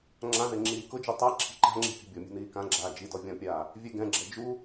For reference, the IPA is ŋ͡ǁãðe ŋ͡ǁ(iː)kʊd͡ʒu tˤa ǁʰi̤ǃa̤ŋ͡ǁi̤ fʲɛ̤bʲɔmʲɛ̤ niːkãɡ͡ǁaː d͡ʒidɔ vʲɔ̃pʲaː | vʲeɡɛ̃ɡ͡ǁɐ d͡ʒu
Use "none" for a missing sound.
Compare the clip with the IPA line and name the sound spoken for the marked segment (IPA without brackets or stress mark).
iː